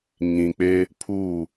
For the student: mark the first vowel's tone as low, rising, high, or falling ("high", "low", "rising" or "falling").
low